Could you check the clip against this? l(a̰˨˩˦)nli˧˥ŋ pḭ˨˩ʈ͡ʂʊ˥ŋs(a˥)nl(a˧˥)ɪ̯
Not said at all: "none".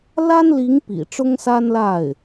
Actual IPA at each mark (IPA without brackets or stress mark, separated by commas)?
a˥, a˥, a˥˩